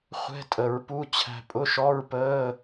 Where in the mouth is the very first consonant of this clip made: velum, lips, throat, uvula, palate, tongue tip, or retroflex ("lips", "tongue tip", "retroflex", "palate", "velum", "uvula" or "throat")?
uvula